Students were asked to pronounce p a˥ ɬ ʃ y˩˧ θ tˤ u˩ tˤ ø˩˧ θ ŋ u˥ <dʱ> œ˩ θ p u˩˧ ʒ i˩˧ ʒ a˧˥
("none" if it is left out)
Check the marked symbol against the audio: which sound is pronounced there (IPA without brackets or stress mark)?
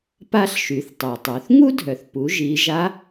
dʱ